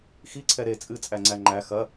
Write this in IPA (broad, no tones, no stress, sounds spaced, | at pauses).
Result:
x i ǀʰ ɛ ɾ e t͡sʼ ɨ t͡sʼ æ ŋ͡ǀ æ ŋ͡ǃ æ x ɐ